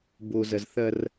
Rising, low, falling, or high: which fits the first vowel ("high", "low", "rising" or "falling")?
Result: low